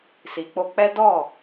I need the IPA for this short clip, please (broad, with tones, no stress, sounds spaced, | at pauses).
s i˨ k͡p o˧ k͡p ɛ˦ d ɔ˦˨